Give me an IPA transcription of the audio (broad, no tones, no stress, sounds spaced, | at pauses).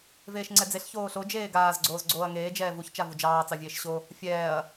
v eː ʃ ŋ͡ǀ ɛ d͡z e ɬ ç oː ɬ o d͡ʒ eː ɡ aː z ɡ͡ǀ oː z ɡ͡ǀ oː ɐ̯ ŋ eː d͡ʒ ɛː v u ç t͡ʃ a v u d͡ʒ ɑː t͡s ɑ vʲ eː ʃ ɕ o | fʲ ɛː ɐ̯